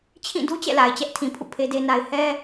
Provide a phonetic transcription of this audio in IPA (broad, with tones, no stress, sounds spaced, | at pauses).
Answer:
t͡ɕʰ ĩ˦˨ d u˦ t͡ɕ ɛ̰˦˨ l a˨ ɪ̯ t͡ɕ ɛ˦ ʔ tʰ ĩ˨ pʰ ṵ˦˨ pʰ e˦ d e˦ n a˦ ɪ̯ h ɛ˦